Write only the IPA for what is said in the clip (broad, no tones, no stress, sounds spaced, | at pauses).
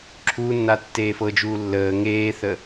ǁʰ u nː a tː eː f ɤ d͡ʒ uː lː əː ŋ eː θ ə